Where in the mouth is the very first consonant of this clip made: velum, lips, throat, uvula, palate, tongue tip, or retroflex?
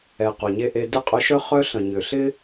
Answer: uvula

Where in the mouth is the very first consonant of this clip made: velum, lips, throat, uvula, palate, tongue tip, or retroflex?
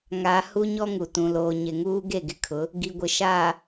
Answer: velum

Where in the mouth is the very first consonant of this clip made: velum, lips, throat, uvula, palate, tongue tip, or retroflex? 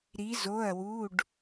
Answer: tongue tip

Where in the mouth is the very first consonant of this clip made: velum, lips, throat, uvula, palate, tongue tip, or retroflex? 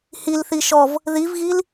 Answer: throat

